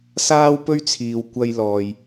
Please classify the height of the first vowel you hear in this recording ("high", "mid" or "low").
low